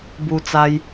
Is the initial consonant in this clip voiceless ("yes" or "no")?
no